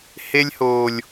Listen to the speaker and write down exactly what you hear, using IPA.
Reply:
h e˦ lʲ h oː˨ lʲ

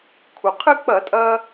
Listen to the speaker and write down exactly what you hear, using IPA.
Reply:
kʰ u˩ qʰ ɨ˥ k͡p ɐ˧˩˧ tʼ ɐ˧

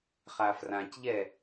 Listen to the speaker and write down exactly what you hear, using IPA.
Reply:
χ a f r ã c ʎ ɛ

